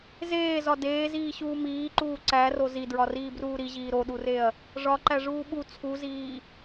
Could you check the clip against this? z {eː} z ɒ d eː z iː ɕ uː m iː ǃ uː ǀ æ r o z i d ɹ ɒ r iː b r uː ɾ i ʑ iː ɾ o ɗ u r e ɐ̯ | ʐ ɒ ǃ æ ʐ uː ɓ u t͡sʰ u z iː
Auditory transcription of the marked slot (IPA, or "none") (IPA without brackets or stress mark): eː